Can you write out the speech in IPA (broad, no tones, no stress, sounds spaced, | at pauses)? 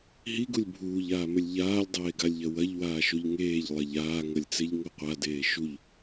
ɦ i ɡ u lʲ bʱ uː ʎ aː m ɘ lʲ ʎ aː lʲ dˤ eː ɡ a lʲ ʎ ɐ w ɐ ʎ w aː ʃ o ʎ ŋ eː ʎ lˠ ɐ ʎ aː ŋ ɐ lʲ t͡s e ʎ ŋ o qʷ a d eː ʃ u ʎ